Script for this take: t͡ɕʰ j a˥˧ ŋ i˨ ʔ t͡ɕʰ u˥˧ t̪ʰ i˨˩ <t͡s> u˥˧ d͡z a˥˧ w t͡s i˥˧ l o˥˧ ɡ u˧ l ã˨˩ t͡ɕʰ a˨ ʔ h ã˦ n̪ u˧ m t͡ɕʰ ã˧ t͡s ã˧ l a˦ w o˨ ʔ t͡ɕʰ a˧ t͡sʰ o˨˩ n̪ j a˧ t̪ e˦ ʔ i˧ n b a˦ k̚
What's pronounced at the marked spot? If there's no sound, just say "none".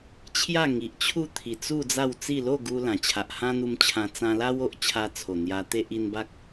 t͡s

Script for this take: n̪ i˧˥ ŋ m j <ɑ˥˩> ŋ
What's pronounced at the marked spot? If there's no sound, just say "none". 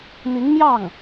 ɑ˥˩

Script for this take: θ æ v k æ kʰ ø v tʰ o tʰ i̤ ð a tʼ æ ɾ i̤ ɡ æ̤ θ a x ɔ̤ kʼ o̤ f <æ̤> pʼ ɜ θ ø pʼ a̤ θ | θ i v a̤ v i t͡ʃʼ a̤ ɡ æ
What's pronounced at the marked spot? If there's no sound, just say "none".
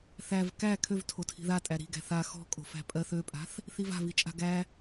æ̤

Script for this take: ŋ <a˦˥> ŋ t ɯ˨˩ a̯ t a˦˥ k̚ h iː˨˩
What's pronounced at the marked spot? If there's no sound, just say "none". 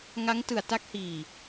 a˦˥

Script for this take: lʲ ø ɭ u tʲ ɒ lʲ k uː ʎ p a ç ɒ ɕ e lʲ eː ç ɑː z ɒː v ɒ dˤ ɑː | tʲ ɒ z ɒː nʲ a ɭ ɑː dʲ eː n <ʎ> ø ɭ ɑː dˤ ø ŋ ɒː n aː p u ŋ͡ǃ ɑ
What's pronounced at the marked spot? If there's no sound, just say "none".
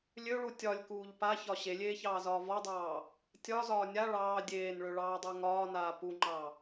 ɭ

